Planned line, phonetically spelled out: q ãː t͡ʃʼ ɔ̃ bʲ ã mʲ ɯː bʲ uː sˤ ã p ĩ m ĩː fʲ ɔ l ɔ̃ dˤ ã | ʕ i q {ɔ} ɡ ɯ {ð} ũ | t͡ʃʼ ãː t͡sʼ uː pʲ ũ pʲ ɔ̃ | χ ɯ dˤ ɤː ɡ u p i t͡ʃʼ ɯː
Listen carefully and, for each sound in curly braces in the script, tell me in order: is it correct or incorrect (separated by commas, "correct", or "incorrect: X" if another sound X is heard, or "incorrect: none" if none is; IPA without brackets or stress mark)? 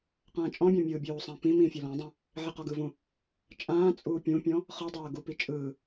correct, incorrect: v